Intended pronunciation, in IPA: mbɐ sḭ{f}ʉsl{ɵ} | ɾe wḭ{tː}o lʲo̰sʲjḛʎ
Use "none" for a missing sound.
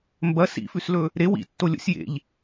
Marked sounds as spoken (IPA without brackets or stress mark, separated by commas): f, ɵ, tː